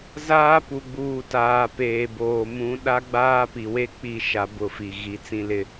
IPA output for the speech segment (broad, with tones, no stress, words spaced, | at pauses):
zaː˦ pu˨ɡ͡buː˨taː˨ peː˨boː˨ mũ˨˦ ɗa˦ɡ͡baː˦ pi˨we˦ k͡pi˦ ʃa˦bʊ˦˨fi˨ ɣi˨˦ t͡sĩ˦lɪ˦